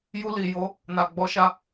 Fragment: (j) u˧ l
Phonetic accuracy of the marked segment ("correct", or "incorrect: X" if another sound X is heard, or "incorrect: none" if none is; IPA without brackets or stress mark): correct